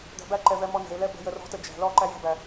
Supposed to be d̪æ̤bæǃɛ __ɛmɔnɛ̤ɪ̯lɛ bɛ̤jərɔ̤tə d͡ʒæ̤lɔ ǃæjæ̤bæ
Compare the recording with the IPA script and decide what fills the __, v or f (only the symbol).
v